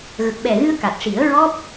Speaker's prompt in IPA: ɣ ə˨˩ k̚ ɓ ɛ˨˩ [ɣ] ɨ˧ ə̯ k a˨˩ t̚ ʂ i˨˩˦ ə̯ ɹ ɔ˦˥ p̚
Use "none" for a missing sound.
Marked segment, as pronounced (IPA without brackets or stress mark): ɣ